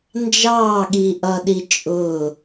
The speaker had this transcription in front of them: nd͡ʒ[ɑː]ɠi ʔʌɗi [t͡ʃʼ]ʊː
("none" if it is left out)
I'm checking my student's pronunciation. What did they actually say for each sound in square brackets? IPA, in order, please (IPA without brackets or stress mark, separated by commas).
ɑː, t͡ʃʼ